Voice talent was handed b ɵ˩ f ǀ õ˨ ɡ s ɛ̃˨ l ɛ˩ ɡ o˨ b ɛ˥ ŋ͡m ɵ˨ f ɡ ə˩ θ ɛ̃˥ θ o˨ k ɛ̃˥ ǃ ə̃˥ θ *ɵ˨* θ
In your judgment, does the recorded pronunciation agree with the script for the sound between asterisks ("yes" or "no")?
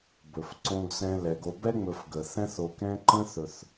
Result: yes